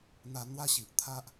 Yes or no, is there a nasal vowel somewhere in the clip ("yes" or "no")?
no